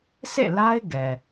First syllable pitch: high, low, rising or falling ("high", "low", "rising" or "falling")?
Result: falling